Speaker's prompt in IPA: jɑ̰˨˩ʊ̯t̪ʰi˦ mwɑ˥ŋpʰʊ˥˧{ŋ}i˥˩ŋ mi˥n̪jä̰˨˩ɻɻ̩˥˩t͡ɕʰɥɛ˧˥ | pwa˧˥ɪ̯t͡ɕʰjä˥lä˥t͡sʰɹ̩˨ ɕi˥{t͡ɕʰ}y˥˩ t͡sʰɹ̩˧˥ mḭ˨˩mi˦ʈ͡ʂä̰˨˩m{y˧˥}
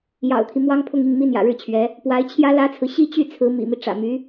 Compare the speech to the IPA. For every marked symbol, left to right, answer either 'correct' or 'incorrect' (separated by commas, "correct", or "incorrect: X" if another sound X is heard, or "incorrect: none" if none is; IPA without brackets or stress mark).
correct, incorrect: t͡ɕ, correct